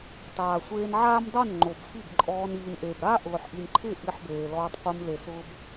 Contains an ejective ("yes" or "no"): yes